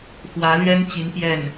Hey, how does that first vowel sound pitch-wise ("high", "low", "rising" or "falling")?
rising